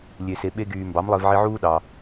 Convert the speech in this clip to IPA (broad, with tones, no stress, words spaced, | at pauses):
lʲe˩se˩ ɓe˧ɡyː˩ mbɑ˩˥mlˠe˧vʕi˧ʕuː˥ ɗɑ˩